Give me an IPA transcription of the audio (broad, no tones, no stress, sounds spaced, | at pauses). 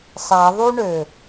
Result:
sˤ æ ðˤ u ɳ ø